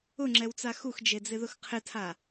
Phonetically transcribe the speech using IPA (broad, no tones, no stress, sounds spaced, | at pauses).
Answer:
ʊ ŋ͡ǁ ɛ w t͡s a x u x d͡ʒ e d͡z ɪ ð ʊ x qʰ ɪ tʰ a